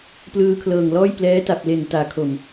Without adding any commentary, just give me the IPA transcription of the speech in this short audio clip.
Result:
p l ɯː˧ kʰ l ɤː˨˩ ŋ l ɔː˥˩ j p l ɛː˦˥ t a˨˩ p̚ l e˨˩ n t aː˩˦ kʰ o˨˩ m

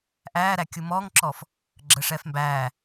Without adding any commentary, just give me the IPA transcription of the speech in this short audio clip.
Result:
ʔ æː ɾ æ kʲ u m ɔː ŋ ǁ ɔ f | ɡ͡ǁ əː ʂ ɛː f m b æː

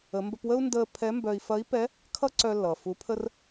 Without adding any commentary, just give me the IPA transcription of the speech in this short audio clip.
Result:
ə˩˧ m b ə˧ p w ə˥ u̯ n d əː˧ pʰ ɛ˧˥ m b œ˧ i̯ f ɐ˧˥ i̯ p ɛ˧˥ | kʰ ʌ˥ ǀ œ˧ lː ʌː˩ f u˩˧ pʰ ə˧ r

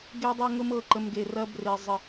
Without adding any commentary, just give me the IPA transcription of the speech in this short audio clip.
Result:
ɡ e˧ dˤ ə˧ ŋ ʊ˧ m ɤ˨ ǃ ə˨ m ɡ e˨ r ɐ˧ b r e˨ zˤ ə˨

